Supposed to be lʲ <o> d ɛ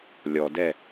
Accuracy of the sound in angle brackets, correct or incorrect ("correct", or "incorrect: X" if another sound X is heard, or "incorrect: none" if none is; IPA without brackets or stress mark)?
incorrect: ɔ